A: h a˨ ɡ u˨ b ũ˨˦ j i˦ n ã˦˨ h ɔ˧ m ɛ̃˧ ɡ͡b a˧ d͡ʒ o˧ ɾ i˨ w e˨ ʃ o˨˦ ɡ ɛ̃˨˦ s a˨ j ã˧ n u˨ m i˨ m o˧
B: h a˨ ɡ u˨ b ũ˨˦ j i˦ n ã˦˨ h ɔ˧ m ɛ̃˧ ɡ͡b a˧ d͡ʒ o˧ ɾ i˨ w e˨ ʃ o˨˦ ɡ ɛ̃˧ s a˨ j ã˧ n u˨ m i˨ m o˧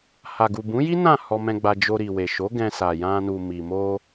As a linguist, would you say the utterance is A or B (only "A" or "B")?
B